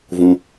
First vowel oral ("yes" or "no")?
no